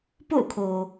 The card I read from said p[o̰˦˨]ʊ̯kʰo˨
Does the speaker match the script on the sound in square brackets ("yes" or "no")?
yes